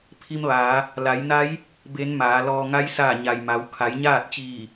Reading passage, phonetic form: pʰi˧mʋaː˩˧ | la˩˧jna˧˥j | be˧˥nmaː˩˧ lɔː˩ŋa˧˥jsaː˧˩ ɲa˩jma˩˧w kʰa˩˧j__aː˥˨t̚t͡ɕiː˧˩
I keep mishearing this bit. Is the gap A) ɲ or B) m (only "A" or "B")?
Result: A